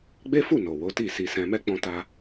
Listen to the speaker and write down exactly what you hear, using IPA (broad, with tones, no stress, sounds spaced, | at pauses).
ɡ͡b e˦ f u˦˨ n o˨ w o˨˦ t i˦˨ s i˧ s ɛ̃˧ m ɛ˦ k͡p ɔ̃˧ t a˧